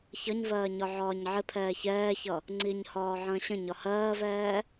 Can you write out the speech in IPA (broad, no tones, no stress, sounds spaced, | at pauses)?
ç ʌ ɲ v ɜː ɲ ɒ ʕ ɒː ɲ ʕ ɪ pʰ ɛː ç ɛː ç ʌ | ŋ͡ǀ i ɲ h ɒː ʕ ə̃ː ɕ ə̃ ɲ ɒ h ɜː v ɛː